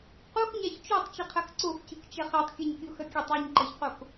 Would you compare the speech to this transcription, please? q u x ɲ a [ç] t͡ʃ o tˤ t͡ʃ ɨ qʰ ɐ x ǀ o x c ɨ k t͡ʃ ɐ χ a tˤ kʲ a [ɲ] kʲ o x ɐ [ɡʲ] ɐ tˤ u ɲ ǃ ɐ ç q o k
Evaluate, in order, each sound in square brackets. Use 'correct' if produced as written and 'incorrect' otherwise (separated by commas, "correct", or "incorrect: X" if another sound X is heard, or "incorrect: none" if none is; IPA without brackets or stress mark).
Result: correct, correct, incorrect: kʲ